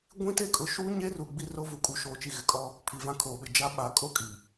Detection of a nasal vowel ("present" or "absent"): present